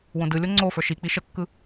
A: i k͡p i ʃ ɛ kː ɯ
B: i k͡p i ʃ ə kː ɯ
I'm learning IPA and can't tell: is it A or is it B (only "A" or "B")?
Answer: B